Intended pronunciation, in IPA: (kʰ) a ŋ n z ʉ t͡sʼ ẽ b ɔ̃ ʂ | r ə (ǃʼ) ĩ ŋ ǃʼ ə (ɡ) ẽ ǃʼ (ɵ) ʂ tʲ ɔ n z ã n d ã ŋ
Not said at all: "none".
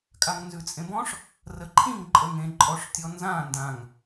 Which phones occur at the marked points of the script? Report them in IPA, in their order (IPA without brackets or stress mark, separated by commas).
kʼ, ǃʰ, ŋ, ɔ